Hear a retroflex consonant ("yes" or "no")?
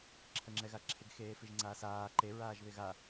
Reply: no